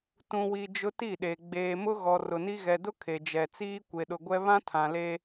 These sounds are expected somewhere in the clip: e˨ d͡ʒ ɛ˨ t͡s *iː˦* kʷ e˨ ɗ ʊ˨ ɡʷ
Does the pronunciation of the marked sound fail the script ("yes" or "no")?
no